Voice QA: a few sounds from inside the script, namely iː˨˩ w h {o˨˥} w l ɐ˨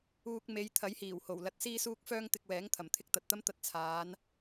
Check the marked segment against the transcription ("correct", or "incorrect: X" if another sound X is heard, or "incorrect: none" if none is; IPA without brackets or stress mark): incorrect: o˨˩